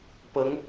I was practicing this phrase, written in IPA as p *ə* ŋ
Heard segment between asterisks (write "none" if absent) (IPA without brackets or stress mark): ə